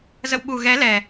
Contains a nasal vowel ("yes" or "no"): no